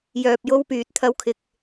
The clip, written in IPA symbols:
j œː˧ p̚ j o˥ w p yː˨˥ t̚ t̪ʰ ɐ˧ w kʰ ɪ˨ k̚

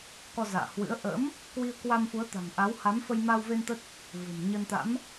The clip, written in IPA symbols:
k ɔ˧ z a̰ː˧˨ h w ɨ̰˧˥ ə̯ ʔ ə̰ː˧˥ m | k w i˧ ə̯ k w a˧ m f u˨˦ ə̯ t̪ a̤˨˩ ŋ ʔ a˨˦ w h a˨˦ m f ə˧ j m a˧ w v e˧ n t̪ ə˦˥ t̚ | v ɨ̤˨˩ m ɲ ə˧ n t̪ a̰˧˥ m

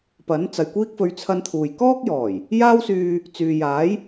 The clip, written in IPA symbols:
p ɐ˨˥ n t͡s ɐ˨ j kʷ iː˥ k̚ f ɵ˧ ɥ t͡sʰ ɐ˧ n t̪ʰ uː˨ j k ɔː˥ k̚ j ɔː˨˩ j | j aː˥ w s yː˧ | t͡s yː˨ j aː˨˥ j

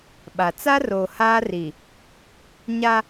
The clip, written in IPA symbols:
ɓ a˨ t͡s a˦ r oː˨ h aː˦ r i˨ | ɲ a˦

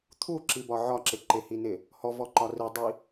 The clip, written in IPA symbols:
t̪ʰ u ǁ i b ɒ ʕ ɒ ǁ ɪ ǃ ɪ h i n ɪ | h ɔ v ɔ ǃ ɒ r i dˤ i

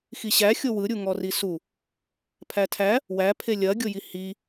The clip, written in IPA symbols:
x i ɕ æ xʲ o w ɯ ɾʲ u ŋ ɔ r i s u | pʰ æ tʰ æ | w æ pʰ e lʲ ɐ ɡʲ o j i h i

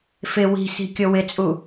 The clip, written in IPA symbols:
f ɪ w i̤ s i̤ kʲ o w ɪ t͡sʼ u

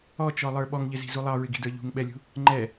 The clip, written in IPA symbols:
ɔ t͡ʃ ɔ lˠ ə˞ ɓ ɔ ŋ ʎ ɪ z i̤ z u lˠ ɑ ɹ ɪ ɡ i̤ d ə˞ ʎ ṳ ŋ ɓ ɛ lʲ ṳ | ŋ͡ǃ ɛ

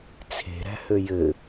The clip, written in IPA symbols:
t͡sʰ e̤ ɾ æ̤ h ø j ɘ

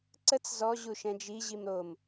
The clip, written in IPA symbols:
ǀ ə t͡s z ɔ ʑ u ʃ ɛ̃ d͡ʒ i ʑ i m ɾ o m

